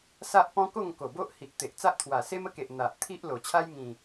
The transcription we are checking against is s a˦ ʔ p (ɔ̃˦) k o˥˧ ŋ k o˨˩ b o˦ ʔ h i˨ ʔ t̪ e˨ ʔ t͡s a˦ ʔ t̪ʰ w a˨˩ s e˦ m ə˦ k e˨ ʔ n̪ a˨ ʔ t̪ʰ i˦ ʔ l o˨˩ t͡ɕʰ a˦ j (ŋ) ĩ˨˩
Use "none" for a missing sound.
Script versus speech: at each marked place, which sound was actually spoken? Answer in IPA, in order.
ɔ̃˦, ŋ

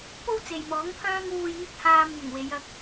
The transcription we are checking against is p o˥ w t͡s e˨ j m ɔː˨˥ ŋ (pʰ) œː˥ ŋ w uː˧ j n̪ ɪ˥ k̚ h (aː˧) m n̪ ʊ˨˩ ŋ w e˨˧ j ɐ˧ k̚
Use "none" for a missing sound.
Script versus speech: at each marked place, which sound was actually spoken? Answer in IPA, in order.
pʰ, aː˧

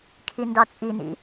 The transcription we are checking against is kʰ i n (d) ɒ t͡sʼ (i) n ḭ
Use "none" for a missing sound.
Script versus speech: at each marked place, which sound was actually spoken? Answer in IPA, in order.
d, i

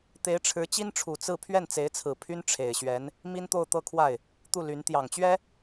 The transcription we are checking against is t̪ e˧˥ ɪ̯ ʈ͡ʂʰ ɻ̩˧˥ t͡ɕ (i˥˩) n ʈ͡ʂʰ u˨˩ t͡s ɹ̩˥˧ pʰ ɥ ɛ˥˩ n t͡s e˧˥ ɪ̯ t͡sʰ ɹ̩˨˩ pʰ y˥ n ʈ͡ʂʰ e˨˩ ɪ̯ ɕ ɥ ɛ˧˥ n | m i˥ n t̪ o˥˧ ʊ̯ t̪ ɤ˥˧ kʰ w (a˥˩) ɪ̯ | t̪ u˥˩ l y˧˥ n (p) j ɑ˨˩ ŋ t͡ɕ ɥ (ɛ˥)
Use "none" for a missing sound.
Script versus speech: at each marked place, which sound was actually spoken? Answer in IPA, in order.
i˥, a˥˩, t̪, ɛ˥

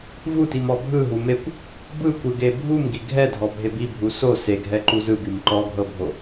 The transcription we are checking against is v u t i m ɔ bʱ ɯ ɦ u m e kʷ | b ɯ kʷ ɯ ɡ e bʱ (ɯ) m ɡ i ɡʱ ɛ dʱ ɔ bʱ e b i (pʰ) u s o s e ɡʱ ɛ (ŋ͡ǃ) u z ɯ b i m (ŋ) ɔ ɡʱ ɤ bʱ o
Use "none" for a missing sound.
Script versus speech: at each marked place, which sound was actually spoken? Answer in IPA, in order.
u, bʱ, ǃ, ǃ

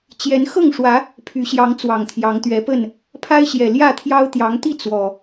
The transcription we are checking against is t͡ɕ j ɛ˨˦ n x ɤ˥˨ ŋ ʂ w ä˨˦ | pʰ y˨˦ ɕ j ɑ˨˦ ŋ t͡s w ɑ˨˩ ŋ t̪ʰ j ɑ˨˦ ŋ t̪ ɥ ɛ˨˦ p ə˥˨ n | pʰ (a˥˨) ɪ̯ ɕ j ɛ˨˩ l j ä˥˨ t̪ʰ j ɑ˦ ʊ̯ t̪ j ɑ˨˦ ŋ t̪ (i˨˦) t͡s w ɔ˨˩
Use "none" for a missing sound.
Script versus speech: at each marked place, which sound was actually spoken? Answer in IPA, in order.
a˦, i˥˨

